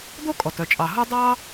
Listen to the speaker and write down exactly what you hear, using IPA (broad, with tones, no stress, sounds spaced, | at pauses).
d̪ o˥ kʼ ɔ˩ t œ˩ t͡ʃʼ ɑ˩ ɦ o˥ dˤ ɑ˥